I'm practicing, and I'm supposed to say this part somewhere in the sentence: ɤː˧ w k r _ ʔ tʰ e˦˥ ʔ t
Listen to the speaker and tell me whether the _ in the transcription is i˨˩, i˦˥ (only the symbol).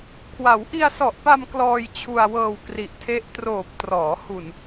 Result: i˨˩